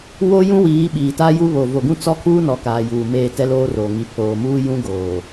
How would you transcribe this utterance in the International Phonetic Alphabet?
w o˦ j ũ˦ w iː˨˦ ɓ iː˨ t a˦ j u˦ β o˨ v o˨ ɡ ũ˦ t͡s ɔ˦ kʰ uː˦ n ɔ˨˦ k aː˨ j uː˨ m eː˦˨ t ɛ˦ l oː˦ r oː˨ ŋ i˨ pʰ oː˨ m uː˦ j ũ˦ ɡ oː˨

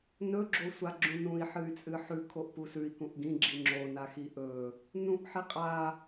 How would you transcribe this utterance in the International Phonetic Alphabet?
n ɵ ɡ͡ǁ o sʷ a ɡ͡ǁ ũ n ũ i̯ ħ ɨ y̯ t͡sʼ ɨ ħ ʉ kʰ o ʔ p u s ʉ i̯ k ũ ʔ ɡ ĩ ɡ͡ǁ i ŋ͡ǁ o n a x i ʔ ɵ | n ũ ʔ ħ i qʼ a

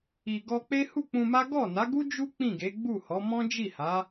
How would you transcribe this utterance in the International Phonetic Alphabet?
i˨ ɡ ɔ˧ k͡p e˦ h u˦˨ k͡p ũ˧ m a˦ ɡ ɔ˦˨ n a˨˦ ɡ u˦ d͡ʒ u˦ k͡p ĩ˦˨ ɡ e˨˦ ɡ͡b u˦˨ h ɔ˨˦ m ɔ̃˦ d͡ʒ i˦˨ h a˨˦

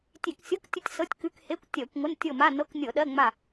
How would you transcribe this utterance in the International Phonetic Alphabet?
tʲ e˧˩˧ k sʲ ɤ˧˥˧ k tʲ ə˦˨ tʲ s ɤ˧˥˧ tʲ k ʉ˧˥˧ k h e˧˥˧ kʷ tʲ ɜ˧˩˧ kʷ ŋʷ ə˧˥˧ n tʲ ɤ˦˨ m a˧˥˧ n ɤ˧˥˧ k nʲ ɤ˧˩˧ ɗ ɜ˧˥˧ ŋ͡m a˦˨

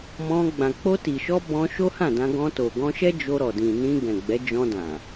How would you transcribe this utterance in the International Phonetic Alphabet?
m ɔ̃˧ ɡ͡b ã˨ k͡p o˧ t i˨ ʃ ɔ˧ b ɔ̃˧ ʃ o˦ h ã˦˨ d ã˧ ɡ ɔ̃˧ t o˨ ɡ ɔ̃˧ ʃ ɛ˦ d͡ʒ o˧ ɾ ɔ˨ d ĩ˨ n ĩ˧ ɡ ɛ̃˨ ɡ͡b ɛ˨˦ d͡ʒ ɔ̃˧ d ã˨

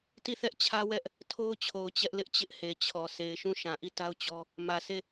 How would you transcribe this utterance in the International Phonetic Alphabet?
t i˦˨ θ ɛ˦ ʔ t͡ɕʰ ä˦ w ɛ˦ ʔ | tʰ o˦ ʊ̯ t͡ɕʰ o˨ ʊ̯ t͡ɕ ɛ˦ ʔ l ɪ˦ ʔ t͡ɕ ɪ˦ ʔ h e˨ t͡ɕʰ ɔ˨ s e˨ ɪ̯ ʃ ũ˦˨ ʃ ã˨ ʔ i˦˨ t a˦ ʊ̯ t͡ɕ ɔ˦ | m ä˨ sʰ e˦˨

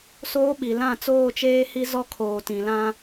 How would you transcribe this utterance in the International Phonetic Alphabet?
s oː˦ ɓ i˨ l ã˦˨ t͡s oː˦˨ t͡ʃ eː˦ h i˦ z ɔ˦ kʰ oː˨ t ĩ˨ l ã˦

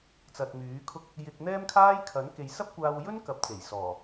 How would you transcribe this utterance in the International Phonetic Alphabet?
t͡s ɐ˨ t̚ m yː˨˥ kʰ ʊ˥ k̚ | j ɪ˧ k̚ n̪ ɛː˥ m kʰ aː˥ j kʰ ɐ˨˥ n k e˨˧ j s ɐ˥ p̚ kʷ aː˧ w j ɵ˥ n k ɐ˨˥ p̚ t͡s e˨˩ j s ɔː˨˩

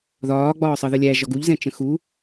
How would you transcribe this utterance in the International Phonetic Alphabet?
ð ɒː ɡ͡b ɒː sˤ ʌ ð ə lʲ æ ʒ ɒ ɡ u ʎ z ɛ̃ t͡ʃ ə̃ x u

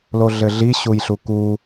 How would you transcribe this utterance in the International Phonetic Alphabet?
l o ɮ ɘ ɮ i ɕ u j ɬ u k u

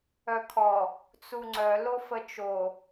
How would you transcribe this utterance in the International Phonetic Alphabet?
œ kʰ ɔ | t͡s u ŋ͡ǀ œ l o f ə t͡ʃ o

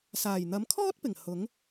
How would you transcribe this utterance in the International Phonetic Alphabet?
s aː˨˩ j n̪ ɐ˨˥ m kʰ ɔː˥ t̚ p ɪ˨˩ ŋ h ʊ˨˥ ŋ

